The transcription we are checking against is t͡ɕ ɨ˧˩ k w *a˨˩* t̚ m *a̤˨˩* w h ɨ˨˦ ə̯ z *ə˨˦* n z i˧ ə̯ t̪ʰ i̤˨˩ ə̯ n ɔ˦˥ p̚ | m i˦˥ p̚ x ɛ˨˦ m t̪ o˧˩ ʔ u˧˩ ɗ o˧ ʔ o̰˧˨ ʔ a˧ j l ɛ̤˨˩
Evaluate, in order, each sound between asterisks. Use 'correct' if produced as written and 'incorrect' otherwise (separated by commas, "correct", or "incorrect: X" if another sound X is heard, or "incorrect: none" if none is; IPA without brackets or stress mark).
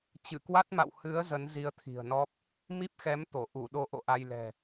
incorrect: a˦˥, incorrect: a̰˧˨, correct